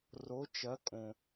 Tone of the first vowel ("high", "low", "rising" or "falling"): rising